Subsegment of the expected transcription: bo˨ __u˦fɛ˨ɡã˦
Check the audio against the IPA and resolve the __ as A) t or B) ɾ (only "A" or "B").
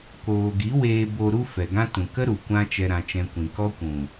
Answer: B